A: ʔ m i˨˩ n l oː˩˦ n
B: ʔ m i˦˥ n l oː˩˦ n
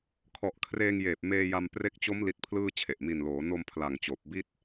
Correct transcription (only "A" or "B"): A